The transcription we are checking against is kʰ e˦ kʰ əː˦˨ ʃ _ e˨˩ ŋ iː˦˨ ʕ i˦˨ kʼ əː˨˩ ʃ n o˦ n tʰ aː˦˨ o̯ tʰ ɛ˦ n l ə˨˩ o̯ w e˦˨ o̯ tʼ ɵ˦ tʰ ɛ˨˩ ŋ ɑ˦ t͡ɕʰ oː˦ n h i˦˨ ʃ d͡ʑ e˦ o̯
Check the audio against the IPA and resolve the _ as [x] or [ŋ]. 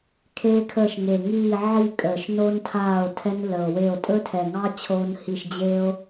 ŋ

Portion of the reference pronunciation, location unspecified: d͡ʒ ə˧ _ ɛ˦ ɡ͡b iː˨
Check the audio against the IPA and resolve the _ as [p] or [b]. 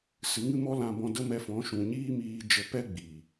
p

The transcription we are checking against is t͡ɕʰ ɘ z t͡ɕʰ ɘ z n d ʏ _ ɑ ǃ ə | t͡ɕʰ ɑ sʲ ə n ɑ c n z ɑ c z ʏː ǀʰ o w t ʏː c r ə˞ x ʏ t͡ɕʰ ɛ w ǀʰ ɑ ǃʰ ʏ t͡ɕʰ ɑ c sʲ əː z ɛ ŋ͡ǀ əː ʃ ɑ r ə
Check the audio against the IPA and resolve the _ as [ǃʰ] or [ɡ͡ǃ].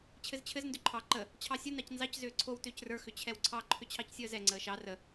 ǃʰ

